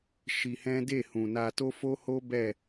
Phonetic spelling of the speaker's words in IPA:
ʃ i˧ h ɛ̃˦ d e˦˨ h ũ˨ n a˧ t o˦ f o˦ h o˦ b ɛ˦˨

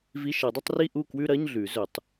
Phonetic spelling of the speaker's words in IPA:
v i˧˥˧ ʃ ɐ˨˩˦ dˤ ɨ˥˧ tˤ r i˥˧ ʔ u˥˩ k w ʉ˥˧ ɾ ɐ˧˥˧ ɲ ɮ ʉ˨˩˦ z ɵ˨˩˦ tˤ

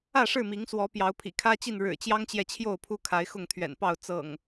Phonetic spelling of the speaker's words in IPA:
ä˥˨ ʂ ɻ̩˥˨ m i˨˦ ŋ s w ɔ˨˦ p j ɑ˨˦ ʊ̯ pʰ ḭ˨˩ kʰ ä˦ t͡ɕ i˥˨ n ɻ ɻ̩˨˩ t͡ɕ j ɑ˦ ŋ t͡ɕ j ɛ˨ t͡ɕʰ j o˥˨ ʊ̯ pʰ u˦ kʰ a˨˦ ɪ̯ x ʊ˥˨ ŋ t̪ʰ ɥ ɛ̰˨˩ n p ɑ˥˨ ʊ̯ t͡s ɤ̰˨˩ ŋ

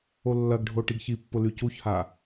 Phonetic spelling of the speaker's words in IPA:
o lː ɐ ɡ ɖʱ o ʈ i ɡ ç i pː ʊ l y c u ç h a

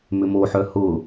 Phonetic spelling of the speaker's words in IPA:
m ʏ m o ħ œ h ʊ

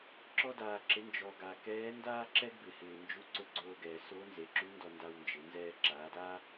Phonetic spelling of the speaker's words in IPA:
ǁ ɔ˧ d aː˩ ǁ ɪ˩˧ n d͡ʒ ɔ˩ ɡ a˩ k ɛː˧˥ n d aː˥ ǁ ɛ˥ ɡ b ɪ˩ h ɪː˩ n d͡ʒ u˧˥ ǀ ʊ˧˥ ɡ͡ǀ oː˧ ɡ ɛː˩ s oː˧˥ n z e˩˧ ǁ u˧˥ n d ɔ˧ n d a˧ w n d͡ʒ ɪ˩˧ n z ɛː˧ ǁ aː˩˧ d aː˥

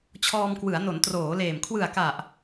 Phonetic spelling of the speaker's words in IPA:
t͡ɕʰ ɔː˧ m k w ɯ˩˦ a̯ n o˩˦ n t r oː˩˦ l eː˨˩ m kʰ w ɯ˨˩ a̯ k a˨˩ ʔ

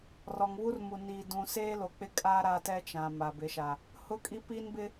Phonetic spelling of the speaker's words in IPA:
r ɔ˨ ŋ β u˦ r m u˨ n iː˨ d ũ˨ s eː˦ l o˨ k͡p ɪ˦ kʼ aː˦ ɾ aː˦ t ɛ˦ t͡ʃ ã˨ m a˨ b ɪ˨˦ ʃ a˨ | h ʊ˦ kʼ i˦ p iː˦ n b ɪ˦

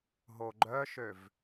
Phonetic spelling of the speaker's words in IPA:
ɦ o ɡ͡ǃ œ ʃ ø v

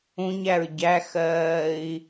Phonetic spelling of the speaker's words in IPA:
ũ ɲ æ ɹ ɟ æ x ɜː i̯

